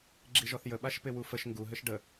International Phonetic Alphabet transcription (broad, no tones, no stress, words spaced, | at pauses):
ɡ͡ǁiʒɔθjə ɓaʃpɪwufəʃ ŋɡu ɦɘʃɖə